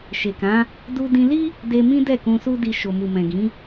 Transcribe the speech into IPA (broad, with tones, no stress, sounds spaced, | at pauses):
ʃ e˨ k ã˨˦ | d u˧ d ĩ˧ l i˦ | d e˧ m ĩ˦ d ɛ˦˨ k ũ˧ s u˦ d i˧ ʃ o˨ m u˨ m ɛ̃˨ ɡ ĩ˨˦